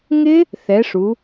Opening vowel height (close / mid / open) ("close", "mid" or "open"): close